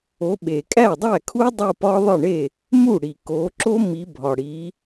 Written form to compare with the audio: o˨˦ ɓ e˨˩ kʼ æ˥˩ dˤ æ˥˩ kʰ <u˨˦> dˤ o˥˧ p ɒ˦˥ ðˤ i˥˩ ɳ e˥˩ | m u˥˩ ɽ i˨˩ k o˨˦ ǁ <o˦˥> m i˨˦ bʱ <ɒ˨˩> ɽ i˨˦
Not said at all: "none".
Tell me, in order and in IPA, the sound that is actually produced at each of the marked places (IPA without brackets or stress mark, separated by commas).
u˦˥, o˦˥, ɒ˨˩